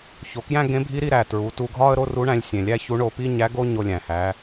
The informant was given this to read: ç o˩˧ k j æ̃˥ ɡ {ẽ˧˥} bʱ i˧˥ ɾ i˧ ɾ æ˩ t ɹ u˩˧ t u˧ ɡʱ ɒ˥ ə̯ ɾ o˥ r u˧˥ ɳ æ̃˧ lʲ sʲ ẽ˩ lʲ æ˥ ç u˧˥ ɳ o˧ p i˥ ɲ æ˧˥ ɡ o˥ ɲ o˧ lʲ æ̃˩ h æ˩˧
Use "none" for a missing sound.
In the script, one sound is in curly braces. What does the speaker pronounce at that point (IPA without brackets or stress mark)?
ẽ˧˥